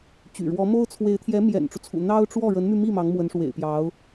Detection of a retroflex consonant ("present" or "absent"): present